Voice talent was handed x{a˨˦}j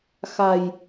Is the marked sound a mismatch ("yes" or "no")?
yes